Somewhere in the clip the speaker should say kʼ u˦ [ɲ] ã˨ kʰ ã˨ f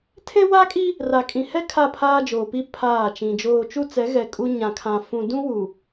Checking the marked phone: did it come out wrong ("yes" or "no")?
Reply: no